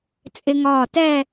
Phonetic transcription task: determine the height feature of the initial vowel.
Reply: high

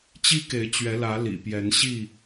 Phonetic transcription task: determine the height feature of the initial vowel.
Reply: high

